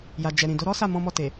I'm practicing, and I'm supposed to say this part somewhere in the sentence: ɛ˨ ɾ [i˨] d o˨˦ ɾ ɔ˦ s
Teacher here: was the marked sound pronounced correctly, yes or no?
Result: no